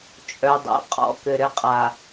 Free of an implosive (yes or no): yes